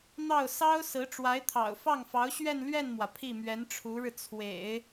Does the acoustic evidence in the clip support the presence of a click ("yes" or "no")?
no